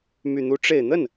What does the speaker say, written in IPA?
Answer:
m y˨˩ n̪ u˧˥ ʈ͡ʂ e˨˩ ɪ̯ n̪ ə˥˩ n

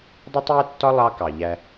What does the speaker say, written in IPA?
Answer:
dˤ i˦ tˤ j ɛ˦ tː ɒ˦ lˠ ɑ˦ k ɑ˨ ʎ æ˦

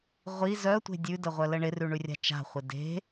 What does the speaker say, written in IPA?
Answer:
ʁʷ i z œ tʷ e̤ dʲ ʉ d ə ʁʷ œ l ə ɳ ɪ r ʉ ɳ ʉ rʲ a̤ t͡ʃ a̤ χʷ ɪ d e̤

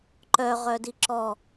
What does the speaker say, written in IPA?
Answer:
ǃ œ ʁ œ d i ǁ ɔ

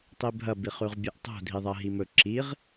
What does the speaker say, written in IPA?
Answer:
tˤ i bʱ ɐ b i χ ʉ ʁ bʲ e ʔ tˤ o̤ dʱ i ðˤ ɐ ɦ i m ɵ ǁ i ʁ

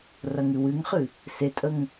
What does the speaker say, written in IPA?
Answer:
r ɐ ŋ ɨ w ɨ ŋ χ ɨ | s e tʼ ə ŋ

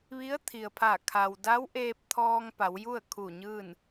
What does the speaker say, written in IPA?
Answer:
ʋ i˧˥ ə̯ t̪ʰ i˩ ə̯ pʰ a˧˩ kʰ a˩ w d a˧˥ w ʔ eː˧ p̚ t̪ʰ ɔː˧ ŋ p a˩˧ w j u˥˨ ə̯ kʰ u˧˩ ɲ ɯː˥˨ n

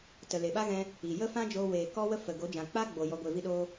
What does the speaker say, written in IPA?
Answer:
t ə˨ l e˨ ɓ a˦ ɣ ɛ̃˧ | i˨ j ə˦ f ã˦ d͡ʒ oː˧ w eː˨ k ɔ˦ w ə˦ f ə˨ ɡ o˨˦ d͡ʒ ã˨ k͡p a˦ ɡ͡b o˨ j ɔ˧ ɡʷ e˧ v i˦ ɗ oː˦

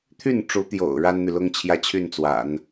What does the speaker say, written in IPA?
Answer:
t̪ʰ y˥˩ n ʈ͡ʂ u˧˥ t̪ j o̰˨˩ ʊ̯ ɻ a˥ n n̪ y˨ l ʊ˥ ŋ t͡ɕʰ j ä˥ t͡ɕʰ y˥˩ n t͡s w a̰˨˩˦ n

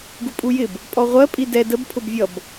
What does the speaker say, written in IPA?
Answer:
ɡ u pʼ u j ɪ b | pʼ ɔ ʁʷ ɜ pʼ i d ɛ d ə b pʰ ʊ b vʲ ʌ b

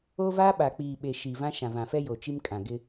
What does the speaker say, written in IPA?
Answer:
o˦ v a˦ ɓ a˨ k͡p iː˨ ɓ e˨ ʃ i˨ v ã˦ ʃ ã˨ v ã˨ f ɛ˦ j o˨ t͡ʃ i˦ m kʼ ã˨ ɡ ɪ˦

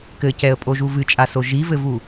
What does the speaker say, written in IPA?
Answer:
k ɘ c ɛ ə̯ pʼ o ʒ u v ɨ t͡ʃʼ a s o ʒ i v ɘ v u

